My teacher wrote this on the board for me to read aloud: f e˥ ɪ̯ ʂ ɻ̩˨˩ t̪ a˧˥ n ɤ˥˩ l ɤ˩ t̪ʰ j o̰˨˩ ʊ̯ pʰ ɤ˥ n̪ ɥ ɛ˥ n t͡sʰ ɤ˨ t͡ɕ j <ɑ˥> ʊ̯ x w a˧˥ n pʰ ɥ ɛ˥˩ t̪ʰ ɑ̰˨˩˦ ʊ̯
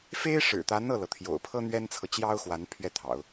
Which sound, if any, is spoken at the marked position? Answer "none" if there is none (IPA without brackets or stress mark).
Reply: ɑ˥